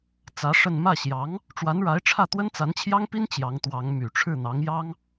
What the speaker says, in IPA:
t͡s ä˧˥ ʂ ə˥˧ n m ä˥˩ ɕ j ɑ˧˥ ŋ | ʈ͡ʂ w a˧˥ n ɻ a˧˥ ɪ̯ ʈ͡ʂʰ ä˥˩ t̪ w ə˥ n t͡s a˧˥ n t͡ɕʰ j ɑ˥ ŋ p i˥ n t͡ɕ j ɑ˧˥ ŋ t̪ w ɑ˧˥ ŋ m y˨˩ ʈ͡ʂʰ ɻ̩˥˩ n̪ ɑ˧˥ ŋ j ɑ˥ ŋ

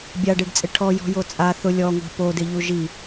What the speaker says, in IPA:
bʲ a ɖ e ɖ t͡sʼ ɪ ʈʰ ɔ j ɔ̤ j o t͡sʼ a θ ʊ lʲ ɔ ŋʷ ɛ̤ p o d ɪ ʎ u ʒ i

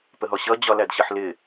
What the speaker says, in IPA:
p ə ɦ ɔ ɕ ʌ d͡ʑ ɒ l æ d ɕ ʌ ħ l ɪ

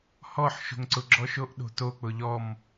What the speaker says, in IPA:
h ɔ ħ ʃ o̤ ŋ ǀ ʊ ɡ͡ǁ ɔ ʃ o ʔ ɗ o̤ t o k͡p ʊ ʎ ɔ m

